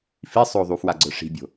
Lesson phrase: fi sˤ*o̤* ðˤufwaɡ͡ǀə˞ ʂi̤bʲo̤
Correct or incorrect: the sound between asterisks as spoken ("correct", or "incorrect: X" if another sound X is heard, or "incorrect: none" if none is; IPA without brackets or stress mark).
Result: incorrect: o